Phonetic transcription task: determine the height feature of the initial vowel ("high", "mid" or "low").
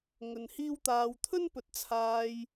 mid